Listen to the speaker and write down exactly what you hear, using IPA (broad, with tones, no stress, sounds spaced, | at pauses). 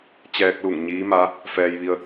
t͡ɕ ɛː˧ k̚ l u˧˩ ŋ ɲ iː˧˥ m a˧˥ | f ɛː˧ j ʋ i˧ ə̯